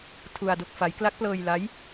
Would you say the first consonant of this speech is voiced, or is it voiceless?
voiceless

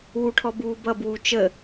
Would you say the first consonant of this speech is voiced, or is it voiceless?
voiced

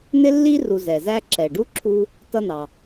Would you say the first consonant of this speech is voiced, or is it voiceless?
voiced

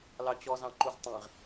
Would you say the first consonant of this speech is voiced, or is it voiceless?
voiced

